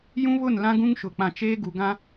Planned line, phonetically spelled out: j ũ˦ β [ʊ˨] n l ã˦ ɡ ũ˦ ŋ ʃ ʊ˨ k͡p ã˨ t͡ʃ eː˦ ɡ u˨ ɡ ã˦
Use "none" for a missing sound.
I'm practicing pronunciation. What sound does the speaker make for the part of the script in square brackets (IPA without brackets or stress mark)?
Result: ʊ˦˨